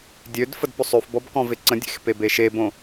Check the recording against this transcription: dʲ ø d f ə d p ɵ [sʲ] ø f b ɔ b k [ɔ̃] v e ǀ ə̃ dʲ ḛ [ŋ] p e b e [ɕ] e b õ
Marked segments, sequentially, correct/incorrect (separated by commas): incorrect, correct, incorrect, incorrect